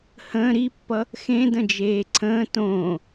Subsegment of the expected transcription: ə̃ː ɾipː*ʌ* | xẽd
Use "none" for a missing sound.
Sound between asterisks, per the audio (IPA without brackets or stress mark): ʌ